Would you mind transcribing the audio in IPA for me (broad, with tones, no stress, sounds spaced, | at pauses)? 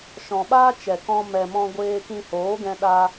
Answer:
ʃ ɔ̃˨ ɓ aː˦ t͡ʃ ɛ˨ k ɔ̃˧ m ɛ˨ m ɔ̃˧ ɡʷ eː˧ k ĩ˧ h oː˨˦ ɡ ɛ̃˧ ɗ a˧